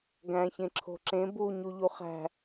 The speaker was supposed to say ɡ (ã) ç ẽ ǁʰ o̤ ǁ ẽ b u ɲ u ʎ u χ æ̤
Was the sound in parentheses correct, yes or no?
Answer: no